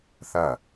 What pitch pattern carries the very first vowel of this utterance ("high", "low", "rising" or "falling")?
falling